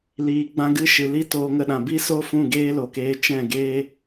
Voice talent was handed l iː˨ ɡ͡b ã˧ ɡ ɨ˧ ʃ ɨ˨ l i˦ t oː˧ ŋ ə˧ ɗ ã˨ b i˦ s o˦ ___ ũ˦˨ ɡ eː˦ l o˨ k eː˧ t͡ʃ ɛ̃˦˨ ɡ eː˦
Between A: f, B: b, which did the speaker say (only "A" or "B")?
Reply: A